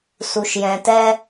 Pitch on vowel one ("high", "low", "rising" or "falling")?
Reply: low